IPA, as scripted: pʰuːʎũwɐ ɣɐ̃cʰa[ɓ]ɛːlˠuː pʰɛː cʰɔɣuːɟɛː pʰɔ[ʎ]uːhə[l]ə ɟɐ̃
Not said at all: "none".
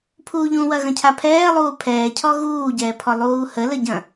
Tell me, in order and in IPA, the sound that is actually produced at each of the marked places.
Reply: pʰ, lˠ, l

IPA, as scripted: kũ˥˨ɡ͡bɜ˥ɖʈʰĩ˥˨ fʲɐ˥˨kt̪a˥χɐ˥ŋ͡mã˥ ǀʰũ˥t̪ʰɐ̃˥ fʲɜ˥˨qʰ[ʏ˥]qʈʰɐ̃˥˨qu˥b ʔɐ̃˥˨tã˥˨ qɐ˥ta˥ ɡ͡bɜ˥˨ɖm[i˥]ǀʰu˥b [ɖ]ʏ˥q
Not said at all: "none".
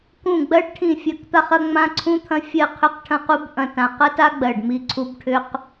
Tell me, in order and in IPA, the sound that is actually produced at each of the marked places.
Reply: ʏ˥˨, i˥, ʈʰ

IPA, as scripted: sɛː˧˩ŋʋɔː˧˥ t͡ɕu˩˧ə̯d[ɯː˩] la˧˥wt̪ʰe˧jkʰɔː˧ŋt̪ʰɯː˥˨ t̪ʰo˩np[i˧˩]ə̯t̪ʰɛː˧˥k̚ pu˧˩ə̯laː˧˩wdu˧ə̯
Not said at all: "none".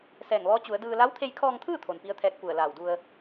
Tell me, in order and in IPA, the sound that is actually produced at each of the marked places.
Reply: ɯː˧, i˧˥

